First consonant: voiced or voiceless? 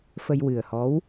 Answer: voiceless